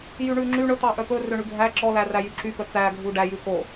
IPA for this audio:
jyɳʉŋ͡ǁy ɳɵ t̪ɑʔœpɵ røɳʉɡʱæ ǁɔ læræjyǁy pœt͡sæ ɡʱuɖæ jʉko

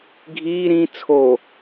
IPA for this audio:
ɡʱiː ɾĩ t͡sʰo

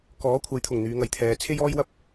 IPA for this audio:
kɔː˨˥ kʷʰɐ˨˥jt̪ʰʊ˨˩ŋ n̪yː˨˧ŋɐ˨jt̪ʰɛː˨˧ t͡sʰe˥jɔː˥jwɐ˥p̚

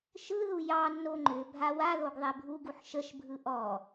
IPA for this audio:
ʃɯðu jɑnːo ŋ͡ǃʏ bʱawaðoɡ ðˤebʱuɡuħ ʃəʃbʱɯ ʔɔ

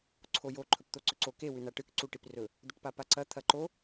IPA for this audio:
ǀʰojo ǃʰɵpt̪oǀɵǀo ke wʉnaʈɨk ǀuʈiprɵ | d̪ɵʈpapaǀɐ t̪ʰɐǃo

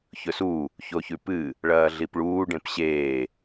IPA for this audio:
çɵsu | çoçʉpɨ | ɭɐːɮipɭuː ɖẽpɕeː

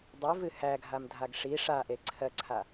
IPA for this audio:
dˤe vɨhæɡʱam dʱaɡʂi ʂaʔe ǀʰɜǀʰa

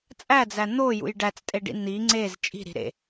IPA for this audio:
t͡sʼæd͡zæ n̪ojṵj ɖæt͡stʼeɖḭ n̪i ŋ͡ǀez t͡ʃʼi̤ɾi̤ ɾḛ

